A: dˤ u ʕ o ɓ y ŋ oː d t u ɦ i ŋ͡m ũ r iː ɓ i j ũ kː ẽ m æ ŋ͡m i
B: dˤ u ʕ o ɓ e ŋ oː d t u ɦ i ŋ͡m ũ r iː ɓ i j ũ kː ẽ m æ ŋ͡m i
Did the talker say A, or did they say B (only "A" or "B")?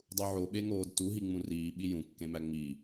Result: B